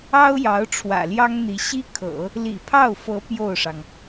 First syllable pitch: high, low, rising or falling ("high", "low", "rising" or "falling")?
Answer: high